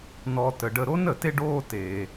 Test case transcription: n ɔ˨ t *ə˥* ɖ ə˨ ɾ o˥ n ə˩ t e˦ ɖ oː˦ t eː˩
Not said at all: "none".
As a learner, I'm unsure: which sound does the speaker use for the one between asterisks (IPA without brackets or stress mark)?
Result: ə˩